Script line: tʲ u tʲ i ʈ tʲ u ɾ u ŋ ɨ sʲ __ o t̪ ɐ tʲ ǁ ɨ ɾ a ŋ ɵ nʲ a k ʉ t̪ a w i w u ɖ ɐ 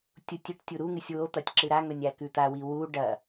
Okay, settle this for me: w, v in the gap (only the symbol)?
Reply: w